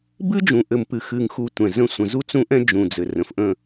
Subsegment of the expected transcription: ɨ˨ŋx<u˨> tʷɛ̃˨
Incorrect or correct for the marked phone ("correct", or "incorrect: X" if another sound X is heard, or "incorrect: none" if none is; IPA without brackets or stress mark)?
correct